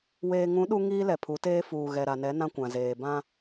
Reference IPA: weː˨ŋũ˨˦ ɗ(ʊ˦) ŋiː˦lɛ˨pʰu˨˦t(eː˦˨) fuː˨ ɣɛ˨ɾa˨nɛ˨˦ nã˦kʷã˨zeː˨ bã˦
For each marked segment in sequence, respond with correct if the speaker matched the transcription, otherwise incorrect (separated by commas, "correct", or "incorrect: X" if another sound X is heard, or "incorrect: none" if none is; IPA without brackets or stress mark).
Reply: incorrect: u˦, incorrect: eː˦